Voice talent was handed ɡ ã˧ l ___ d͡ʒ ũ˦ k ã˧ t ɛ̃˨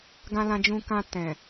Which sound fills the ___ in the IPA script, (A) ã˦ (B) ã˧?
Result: B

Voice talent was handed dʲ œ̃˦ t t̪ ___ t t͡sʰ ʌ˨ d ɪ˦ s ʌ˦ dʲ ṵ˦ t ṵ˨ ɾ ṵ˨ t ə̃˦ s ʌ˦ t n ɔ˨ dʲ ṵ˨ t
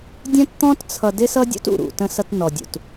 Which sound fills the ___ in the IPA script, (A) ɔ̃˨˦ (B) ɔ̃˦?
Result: B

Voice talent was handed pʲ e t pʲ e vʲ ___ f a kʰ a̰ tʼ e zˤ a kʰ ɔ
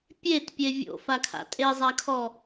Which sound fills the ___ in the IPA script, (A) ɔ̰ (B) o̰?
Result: B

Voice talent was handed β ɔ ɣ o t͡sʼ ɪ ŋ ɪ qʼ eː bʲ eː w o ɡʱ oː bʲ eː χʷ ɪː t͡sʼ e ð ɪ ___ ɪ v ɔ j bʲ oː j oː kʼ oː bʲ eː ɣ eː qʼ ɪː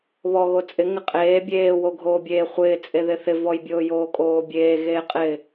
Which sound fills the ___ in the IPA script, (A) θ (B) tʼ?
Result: A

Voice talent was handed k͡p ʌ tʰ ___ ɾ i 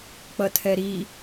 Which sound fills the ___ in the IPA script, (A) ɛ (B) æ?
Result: A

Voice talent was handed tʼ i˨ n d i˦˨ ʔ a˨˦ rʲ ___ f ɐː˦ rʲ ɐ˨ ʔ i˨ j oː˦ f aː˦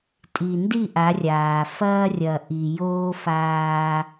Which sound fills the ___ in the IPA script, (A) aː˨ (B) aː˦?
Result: A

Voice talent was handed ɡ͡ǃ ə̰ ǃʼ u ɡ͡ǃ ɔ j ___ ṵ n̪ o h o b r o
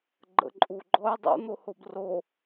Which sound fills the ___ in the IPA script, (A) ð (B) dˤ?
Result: B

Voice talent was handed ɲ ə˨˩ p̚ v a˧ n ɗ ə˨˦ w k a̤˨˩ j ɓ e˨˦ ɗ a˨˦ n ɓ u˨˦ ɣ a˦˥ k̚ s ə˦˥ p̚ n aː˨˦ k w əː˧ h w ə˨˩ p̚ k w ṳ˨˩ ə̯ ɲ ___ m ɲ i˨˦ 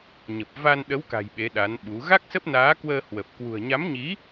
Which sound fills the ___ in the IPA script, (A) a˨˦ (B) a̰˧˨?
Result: A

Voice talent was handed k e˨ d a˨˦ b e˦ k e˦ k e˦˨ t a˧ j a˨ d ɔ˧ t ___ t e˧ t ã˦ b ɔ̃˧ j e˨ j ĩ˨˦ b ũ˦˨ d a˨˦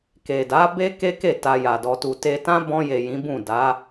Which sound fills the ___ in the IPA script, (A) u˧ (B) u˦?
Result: A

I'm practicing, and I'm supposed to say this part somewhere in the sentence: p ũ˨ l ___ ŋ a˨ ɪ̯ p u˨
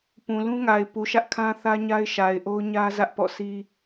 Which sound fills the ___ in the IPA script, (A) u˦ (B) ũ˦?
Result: B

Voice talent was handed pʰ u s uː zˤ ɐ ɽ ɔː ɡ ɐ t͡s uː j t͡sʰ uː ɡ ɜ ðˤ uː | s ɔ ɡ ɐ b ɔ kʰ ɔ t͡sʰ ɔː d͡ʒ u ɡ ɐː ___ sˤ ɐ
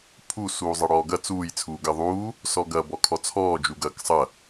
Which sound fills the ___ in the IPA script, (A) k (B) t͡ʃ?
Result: A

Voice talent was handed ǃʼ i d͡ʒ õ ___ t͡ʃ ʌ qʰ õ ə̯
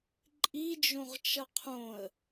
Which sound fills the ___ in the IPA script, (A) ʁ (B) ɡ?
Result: A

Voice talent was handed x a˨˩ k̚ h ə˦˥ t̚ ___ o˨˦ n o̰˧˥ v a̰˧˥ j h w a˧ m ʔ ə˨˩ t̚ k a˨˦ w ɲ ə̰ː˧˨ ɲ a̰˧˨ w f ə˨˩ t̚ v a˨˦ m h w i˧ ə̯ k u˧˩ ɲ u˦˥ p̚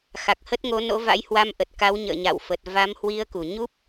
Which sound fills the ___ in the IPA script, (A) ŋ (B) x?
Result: A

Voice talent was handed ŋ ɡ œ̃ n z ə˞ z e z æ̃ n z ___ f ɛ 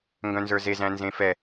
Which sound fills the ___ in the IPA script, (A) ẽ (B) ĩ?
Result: A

